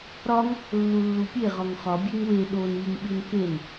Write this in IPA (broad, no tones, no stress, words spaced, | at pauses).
ɾɒŋ | lːulːupʲe ʁɒŋχɒ bʲeŋwe ɗon iŋ ɓinken